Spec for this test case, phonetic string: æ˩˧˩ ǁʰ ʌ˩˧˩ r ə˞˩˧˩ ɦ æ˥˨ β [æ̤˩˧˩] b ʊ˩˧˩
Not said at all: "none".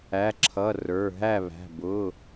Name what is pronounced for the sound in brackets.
æ̤˩˧˩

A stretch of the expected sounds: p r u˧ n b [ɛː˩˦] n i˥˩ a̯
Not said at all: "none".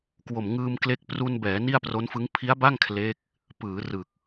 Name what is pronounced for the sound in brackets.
ɛː˩˦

